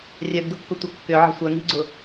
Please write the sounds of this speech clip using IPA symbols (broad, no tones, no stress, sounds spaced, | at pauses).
rʲ œ ɡ d ʊ kː ʊ tʷ ɐ kː ʏ ʕ ə̤ sʷ œ ŋ i̤ ɡ͡ǀ ʊ